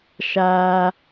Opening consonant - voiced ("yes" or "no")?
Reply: no